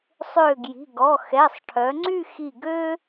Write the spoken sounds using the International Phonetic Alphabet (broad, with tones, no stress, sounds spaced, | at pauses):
sˤ ø˧˩ ɡ j i̤˩˧˩ ɡ ɔ˩˧˩ x ɛ˩˧˩ sˤ ʈʰ œ˩˧ ŋ͡ǀ y˥˧ x i˧˩ ɡ ø˥